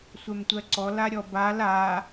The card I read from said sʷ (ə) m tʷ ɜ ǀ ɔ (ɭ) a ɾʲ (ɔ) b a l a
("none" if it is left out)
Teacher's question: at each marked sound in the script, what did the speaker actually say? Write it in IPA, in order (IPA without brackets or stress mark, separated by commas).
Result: ɛ, l, ɔ